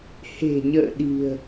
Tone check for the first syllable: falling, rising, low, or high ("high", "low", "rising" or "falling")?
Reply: low